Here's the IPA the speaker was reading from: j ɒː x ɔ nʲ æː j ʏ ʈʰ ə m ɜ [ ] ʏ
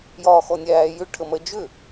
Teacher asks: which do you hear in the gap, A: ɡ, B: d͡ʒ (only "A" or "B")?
B